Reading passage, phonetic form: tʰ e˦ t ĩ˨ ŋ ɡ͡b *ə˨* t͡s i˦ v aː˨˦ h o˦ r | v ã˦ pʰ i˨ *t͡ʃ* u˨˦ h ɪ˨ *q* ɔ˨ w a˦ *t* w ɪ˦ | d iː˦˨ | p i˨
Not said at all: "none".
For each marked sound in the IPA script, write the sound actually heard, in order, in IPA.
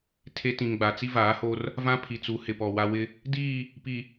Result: a˨, t͡s, p, none

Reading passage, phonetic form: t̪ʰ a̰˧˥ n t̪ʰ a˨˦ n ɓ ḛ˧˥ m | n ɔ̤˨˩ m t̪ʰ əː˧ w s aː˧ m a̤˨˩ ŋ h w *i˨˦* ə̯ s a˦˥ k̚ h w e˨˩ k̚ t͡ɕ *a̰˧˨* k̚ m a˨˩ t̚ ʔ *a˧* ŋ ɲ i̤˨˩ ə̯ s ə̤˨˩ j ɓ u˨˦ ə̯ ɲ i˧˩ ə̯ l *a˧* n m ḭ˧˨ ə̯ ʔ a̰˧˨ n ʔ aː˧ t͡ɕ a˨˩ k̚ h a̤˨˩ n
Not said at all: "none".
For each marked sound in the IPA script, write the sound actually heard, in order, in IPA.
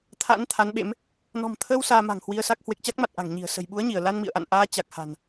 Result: i˧, a˦˥, a̤˨˩, a˧

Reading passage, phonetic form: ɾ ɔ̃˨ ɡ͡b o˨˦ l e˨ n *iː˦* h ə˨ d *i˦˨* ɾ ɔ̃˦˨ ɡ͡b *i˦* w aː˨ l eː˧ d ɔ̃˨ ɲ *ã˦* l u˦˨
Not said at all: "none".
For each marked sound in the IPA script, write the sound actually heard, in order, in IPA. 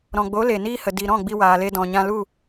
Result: iː˦, i˨, i˧, ã˧

